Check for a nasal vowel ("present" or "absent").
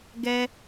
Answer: absent